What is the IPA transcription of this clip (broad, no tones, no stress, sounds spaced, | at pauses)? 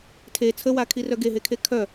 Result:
tʰ e t͡sʰ ə w a kʰ i r œ ɡ e ɦ e kʰ e kʰ œ